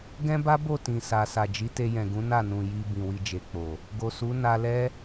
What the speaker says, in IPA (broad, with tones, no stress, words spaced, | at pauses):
ɡɛ̃˦ba˦bo˦˨ tĩ˨sa˨sa˨ d͡ʒi˨˦te˧jɛ̃˨ɡũ˨˦ na˦˨nũ˨ ji˧ bĩ˨wi˧d͡ʒe˨k͡po˨ | ɡo˨su˨˦ na˧lɛ˦